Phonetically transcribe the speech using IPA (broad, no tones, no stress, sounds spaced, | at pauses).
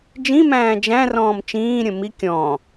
d͡ʒ ĩ m æ̃ː d͡ʒ æ̃ r ɔ̃ː m t͡ʃ ĩː ɾʲ ə̃ m i kʲ ɔ̃ː